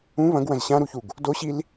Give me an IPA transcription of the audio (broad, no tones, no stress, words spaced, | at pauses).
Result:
ũ βɐ̃ɡwɐ̃z ɕãɾuçuɡ | doɕil